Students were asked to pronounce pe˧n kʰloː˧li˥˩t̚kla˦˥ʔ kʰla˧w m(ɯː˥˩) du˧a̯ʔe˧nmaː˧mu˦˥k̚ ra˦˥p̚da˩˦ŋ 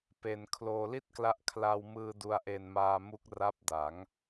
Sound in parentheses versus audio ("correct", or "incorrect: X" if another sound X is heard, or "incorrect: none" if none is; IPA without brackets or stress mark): incorrect: ɯː˧